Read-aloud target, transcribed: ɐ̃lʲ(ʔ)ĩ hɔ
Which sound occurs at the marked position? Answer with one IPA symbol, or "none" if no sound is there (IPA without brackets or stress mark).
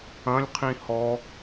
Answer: qʰ